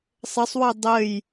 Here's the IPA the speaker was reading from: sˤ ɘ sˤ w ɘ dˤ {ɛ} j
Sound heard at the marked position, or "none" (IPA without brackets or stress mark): ɘ